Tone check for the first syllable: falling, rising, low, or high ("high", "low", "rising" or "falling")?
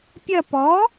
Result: falling